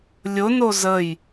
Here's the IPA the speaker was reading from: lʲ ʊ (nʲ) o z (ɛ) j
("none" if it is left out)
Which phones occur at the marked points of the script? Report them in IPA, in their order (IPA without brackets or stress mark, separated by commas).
n, ə